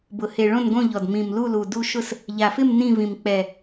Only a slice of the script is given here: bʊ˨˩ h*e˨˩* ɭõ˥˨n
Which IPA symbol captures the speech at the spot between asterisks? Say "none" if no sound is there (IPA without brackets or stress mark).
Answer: e˨˩